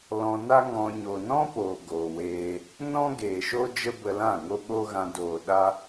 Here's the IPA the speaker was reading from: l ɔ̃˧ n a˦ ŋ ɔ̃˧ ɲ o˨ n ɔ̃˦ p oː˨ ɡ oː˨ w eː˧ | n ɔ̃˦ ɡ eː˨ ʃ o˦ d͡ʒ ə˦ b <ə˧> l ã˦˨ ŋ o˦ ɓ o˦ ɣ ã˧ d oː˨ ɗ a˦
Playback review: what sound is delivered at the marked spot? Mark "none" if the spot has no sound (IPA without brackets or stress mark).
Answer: ə˧